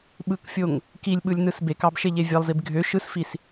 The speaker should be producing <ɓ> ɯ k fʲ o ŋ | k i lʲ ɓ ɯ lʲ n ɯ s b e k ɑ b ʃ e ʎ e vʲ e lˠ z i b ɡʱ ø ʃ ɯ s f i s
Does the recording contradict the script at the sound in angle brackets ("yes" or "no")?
no